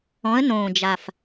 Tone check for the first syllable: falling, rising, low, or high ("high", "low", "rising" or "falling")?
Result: rising